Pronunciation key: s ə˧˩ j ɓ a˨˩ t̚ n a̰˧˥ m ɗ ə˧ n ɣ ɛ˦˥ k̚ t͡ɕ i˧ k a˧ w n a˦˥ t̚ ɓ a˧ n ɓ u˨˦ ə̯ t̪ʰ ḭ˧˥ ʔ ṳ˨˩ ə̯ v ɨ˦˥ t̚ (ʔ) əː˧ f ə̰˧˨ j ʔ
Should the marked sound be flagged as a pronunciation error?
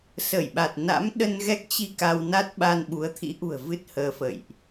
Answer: yes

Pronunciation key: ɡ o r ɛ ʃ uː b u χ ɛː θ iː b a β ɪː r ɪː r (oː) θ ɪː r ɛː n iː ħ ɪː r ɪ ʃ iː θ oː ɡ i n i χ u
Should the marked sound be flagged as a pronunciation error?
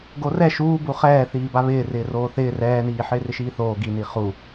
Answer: no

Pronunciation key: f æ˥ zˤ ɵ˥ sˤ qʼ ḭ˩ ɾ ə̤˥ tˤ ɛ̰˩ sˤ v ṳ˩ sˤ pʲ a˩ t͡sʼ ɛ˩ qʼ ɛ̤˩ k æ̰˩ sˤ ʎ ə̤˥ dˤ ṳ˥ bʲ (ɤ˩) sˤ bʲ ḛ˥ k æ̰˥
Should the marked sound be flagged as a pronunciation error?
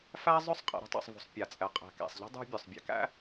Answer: yes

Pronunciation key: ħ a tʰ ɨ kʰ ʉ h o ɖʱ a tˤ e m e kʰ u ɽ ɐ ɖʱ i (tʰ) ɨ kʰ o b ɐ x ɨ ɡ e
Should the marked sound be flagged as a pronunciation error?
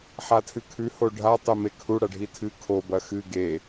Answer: no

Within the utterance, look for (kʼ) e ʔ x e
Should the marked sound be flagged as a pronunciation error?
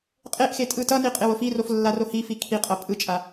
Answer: yes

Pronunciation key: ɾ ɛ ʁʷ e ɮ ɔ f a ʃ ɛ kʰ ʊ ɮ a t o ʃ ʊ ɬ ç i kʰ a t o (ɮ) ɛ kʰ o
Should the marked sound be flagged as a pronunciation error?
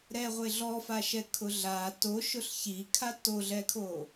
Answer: no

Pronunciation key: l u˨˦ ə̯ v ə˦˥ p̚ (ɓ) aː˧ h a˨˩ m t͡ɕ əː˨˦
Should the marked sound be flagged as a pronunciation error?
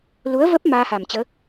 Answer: yes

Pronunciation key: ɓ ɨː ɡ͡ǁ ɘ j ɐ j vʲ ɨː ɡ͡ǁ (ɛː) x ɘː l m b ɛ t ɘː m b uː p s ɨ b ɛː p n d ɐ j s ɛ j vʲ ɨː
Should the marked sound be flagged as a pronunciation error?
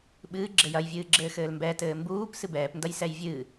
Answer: yes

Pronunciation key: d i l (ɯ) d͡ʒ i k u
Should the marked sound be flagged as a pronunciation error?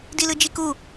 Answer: no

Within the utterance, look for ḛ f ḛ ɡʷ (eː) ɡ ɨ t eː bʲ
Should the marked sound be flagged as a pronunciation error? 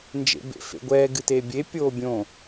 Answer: yes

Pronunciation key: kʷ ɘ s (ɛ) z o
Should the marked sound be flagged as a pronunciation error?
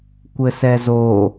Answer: no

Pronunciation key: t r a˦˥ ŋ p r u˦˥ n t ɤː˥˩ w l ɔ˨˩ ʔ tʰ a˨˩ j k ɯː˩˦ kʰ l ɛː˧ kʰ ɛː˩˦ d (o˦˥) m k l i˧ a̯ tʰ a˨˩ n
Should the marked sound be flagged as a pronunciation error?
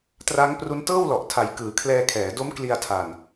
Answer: no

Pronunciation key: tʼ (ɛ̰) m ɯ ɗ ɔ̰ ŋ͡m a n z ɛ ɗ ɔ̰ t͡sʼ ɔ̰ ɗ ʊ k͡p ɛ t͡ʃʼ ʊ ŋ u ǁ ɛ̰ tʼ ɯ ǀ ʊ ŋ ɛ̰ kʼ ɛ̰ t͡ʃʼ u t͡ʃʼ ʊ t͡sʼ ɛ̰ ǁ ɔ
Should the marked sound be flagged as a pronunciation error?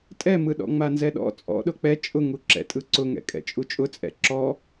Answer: yes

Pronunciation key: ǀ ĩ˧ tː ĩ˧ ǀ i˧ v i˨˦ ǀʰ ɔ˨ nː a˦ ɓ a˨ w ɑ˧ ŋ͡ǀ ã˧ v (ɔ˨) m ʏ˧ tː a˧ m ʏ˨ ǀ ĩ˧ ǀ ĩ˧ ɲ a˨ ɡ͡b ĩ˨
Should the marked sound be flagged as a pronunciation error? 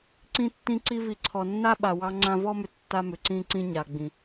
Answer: yes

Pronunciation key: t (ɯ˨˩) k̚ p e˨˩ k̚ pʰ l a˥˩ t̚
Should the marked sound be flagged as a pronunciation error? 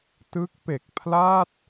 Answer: yes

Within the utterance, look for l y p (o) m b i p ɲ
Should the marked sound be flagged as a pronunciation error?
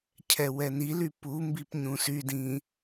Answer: yes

